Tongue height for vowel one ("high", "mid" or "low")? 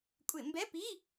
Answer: high